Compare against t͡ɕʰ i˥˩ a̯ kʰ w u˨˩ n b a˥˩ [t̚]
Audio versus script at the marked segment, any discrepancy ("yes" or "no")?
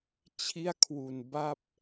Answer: yes